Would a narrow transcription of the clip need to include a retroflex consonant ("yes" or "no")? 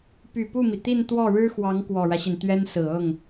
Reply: yes